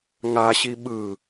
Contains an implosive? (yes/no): yes